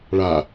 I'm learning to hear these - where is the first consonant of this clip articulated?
retroflex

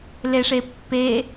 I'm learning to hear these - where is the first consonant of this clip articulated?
tongue tip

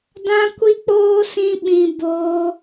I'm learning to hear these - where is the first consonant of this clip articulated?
tongue tip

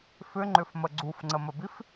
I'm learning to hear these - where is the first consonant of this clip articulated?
lips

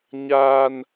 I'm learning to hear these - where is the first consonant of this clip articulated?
palate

